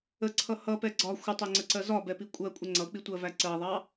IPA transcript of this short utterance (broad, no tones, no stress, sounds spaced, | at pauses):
ə ǀʰ ʌ h ʌ p ɛ ɡ͡ǀ ɒ xʷ ə tˤ ɛ ŋ͡ǀ ə ǀ ɜ z ɒ b ɛ p i kʷʼ ɜ kʷʼ ə ŋ͡ǀ ʌ k͡p i tʷ ɜ v æ ǀ ɜ ðˤ ɑ